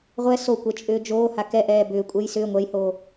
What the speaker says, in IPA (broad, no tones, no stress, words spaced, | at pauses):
ʁʷɛ sokʷɛ t͡ʃʼʏːd͡ʒoːha kɛʔɛː bʏːkʷʼɛj sʏː ŋʷɛjhoː